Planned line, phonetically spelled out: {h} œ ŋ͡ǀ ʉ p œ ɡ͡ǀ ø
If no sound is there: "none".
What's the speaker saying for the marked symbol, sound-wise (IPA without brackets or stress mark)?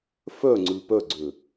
f